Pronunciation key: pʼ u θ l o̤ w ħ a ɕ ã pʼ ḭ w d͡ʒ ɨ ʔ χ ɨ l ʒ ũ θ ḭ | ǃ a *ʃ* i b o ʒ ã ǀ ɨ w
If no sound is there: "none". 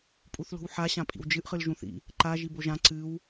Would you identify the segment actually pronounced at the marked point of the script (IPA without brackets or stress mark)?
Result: ʒ